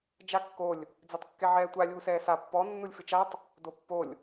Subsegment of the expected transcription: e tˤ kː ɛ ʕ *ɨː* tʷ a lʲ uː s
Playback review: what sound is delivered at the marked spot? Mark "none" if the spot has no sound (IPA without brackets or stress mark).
ɛː